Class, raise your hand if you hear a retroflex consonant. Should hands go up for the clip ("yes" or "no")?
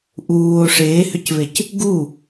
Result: yes